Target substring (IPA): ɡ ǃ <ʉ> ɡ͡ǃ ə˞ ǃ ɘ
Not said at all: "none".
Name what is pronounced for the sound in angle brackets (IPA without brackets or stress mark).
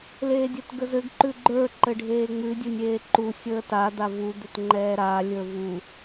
ʉ